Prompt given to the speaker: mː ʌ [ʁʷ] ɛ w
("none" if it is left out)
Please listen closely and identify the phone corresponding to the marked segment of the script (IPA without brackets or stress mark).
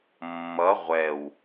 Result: ʁʷ